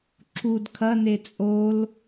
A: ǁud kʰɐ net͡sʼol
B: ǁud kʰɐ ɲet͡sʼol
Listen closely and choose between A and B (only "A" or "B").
A